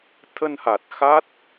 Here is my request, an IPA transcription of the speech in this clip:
t̪ʰ ə˧ n h a˨˩ t̚ x a˦˥ t̚

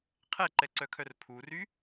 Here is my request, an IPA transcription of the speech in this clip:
qʰ ɛ ǃ ɛ ǀ œ kʰ œ r pʰ u r y

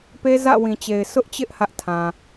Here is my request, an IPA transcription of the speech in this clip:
p e˦ z ä̰˦˨ w ĩ˨ t͡ɕ e˨ ɪ̯ sʰ ʊ˦ ʔ t͡ɕ ɪ˦ ʔ h ä˦ ʔ tʰ ã˨

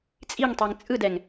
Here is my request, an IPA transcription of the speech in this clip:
t͡sʼ i ŋ tˤ e ŋ t͡sʼ ɯ d ɛ ŋ

